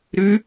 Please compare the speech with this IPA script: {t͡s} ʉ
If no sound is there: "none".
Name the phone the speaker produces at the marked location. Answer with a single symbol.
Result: ɾ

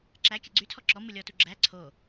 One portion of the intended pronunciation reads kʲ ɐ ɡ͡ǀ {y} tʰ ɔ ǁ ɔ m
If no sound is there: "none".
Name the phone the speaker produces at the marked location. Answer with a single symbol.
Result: y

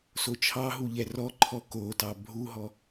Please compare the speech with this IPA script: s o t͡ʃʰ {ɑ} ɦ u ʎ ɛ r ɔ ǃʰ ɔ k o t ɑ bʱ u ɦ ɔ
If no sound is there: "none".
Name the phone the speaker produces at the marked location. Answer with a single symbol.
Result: ɑ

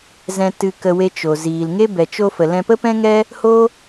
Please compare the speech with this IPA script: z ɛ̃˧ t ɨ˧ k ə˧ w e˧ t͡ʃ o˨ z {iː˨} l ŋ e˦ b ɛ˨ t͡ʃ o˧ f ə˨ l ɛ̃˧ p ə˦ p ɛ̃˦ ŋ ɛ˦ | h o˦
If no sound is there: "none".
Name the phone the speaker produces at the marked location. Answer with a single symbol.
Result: iː˨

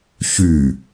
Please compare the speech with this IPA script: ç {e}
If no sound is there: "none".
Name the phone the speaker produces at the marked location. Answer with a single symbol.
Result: y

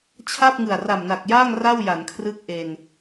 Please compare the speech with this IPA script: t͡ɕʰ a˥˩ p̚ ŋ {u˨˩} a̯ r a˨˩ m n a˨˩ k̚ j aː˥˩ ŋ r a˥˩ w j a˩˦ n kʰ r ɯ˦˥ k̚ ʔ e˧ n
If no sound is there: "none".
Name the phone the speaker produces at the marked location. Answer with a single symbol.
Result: ɯ˨˩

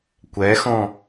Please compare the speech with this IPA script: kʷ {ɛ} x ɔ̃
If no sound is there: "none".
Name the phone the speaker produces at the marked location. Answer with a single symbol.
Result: ɛ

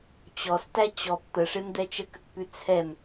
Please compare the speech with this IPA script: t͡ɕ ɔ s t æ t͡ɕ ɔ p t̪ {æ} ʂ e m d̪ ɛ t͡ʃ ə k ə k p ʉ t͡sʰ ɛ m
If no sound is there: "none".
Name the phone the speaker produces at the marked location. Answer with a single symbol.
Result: ə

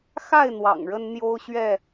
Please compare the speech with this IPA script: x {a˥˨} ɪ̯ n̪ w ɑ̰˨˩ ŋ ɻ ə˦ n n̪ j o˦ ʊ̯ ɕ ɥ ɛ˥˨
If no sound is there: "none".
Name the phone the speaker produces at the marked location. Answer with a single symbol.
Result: a˥˨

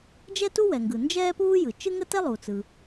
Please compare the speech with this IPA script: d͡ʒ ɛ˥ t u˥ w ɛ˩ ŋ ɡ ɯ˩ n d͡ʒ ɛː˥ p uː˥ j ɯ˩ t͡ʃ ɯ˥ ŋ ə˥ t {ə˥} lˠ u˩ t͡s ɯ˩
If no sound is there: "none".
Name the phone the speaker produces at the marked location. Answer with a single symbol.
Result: ɛ˥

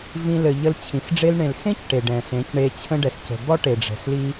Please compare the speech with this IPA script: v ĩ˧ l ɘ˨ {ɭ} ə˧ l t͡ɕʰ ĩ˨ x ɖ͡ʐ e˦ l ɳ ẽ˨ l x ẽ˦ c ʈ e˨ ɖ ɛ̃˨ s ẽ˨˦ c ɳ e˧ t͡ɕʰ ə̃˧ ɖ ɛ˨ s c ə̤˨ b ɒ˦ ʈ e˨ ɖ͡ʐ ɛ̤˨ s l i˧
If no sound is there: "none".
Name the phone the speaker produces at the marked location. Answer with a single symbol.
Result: ʎ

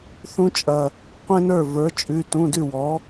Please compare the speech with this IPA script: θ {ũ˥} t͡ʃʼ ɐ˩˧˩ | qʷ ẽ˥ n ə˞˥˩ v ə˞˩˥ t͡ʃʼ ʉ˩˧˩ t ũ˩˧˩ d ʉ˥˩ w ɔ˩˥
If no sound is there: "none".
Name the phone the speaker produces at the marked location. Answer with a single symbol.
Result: ũ˥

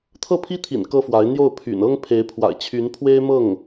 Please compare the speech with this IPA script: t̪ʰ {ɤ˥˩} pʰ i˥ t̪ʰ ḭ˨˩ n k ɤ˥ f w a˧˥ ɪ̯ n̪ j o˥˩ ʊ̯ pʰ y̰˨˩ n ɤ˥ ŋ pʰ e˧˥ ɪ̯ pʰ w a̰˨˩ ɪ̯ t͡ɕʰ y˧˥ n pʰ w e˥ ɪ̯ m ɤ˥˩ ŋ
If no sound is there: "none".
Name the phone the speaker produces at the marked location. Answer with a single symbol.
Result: ɤ˥˩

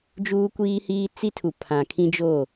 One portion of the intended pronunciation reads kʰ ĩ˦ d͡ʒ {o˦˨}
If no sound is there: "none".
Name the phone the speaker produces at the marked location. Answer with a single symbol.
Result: o˦˨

